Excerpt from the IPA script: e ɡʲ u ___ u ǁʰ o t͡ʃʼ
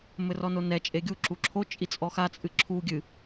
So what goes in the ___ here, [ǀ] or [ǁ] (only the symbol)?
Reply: ǁ